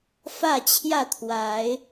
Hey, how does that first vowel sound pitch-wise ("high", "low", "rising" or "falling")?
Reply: falling